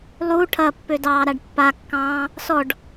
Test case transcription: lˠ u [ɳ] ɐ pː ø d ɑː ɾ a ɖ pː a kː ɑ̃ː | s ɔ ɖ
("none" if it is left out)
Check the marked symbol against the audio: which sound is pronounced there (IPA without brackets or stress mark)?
ʈʰ